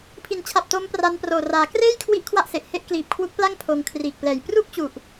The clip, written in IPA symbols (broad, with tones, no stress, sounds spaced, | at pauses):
pʰ i˩˦ n t͡ɕʰ a˨˩ p̚ t o˦˥ m p r a˧ n p r oː˨˩ r aː˩˦ k r eː˥˩ j kʰ w i˦˥ ʔ kʰ w a˥˩ ʔ s e˨˩ ʔ h e˥˩ ʔ k l iː˨˩ p̚ kʰ w u˦˥ k̚ p l a˥˩ ŋ pʰ oː˧ ŋ kʰ r iː˨˩ k̚ p l ɛː˨˩ j p r u˥˩ k̚ t͡ɕ u˨˩ ʔ